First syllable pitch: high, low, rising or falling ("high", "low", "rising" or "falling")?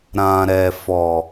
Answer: low